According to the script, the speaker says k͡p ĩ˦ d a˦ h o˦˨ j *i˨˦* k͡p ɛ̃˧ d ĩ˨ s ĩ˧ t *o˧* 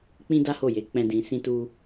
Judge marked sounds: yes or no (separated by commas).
no, no